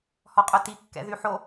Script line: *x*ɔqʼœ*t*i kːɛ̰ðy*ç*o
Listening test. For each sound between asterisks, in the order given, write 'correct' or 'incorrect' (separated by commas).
incorrect, correct, incorrect